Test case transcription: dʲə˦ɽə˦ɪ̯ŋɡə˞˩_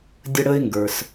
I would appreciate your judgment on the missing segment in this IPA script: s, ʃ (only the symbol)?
s